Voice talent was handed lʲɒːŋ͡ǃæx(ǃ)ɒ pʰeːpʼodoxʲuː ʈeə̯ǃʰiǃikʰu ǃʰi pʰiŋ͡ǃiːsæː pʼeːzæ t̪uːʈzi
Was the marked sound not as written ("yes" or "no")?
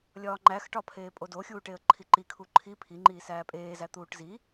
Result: yes